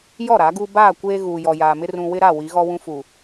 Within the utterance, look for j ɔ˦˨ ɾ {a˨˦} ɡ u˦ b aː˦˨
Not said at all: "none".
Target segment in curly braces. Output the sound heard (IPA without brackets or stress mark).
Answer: a˨˦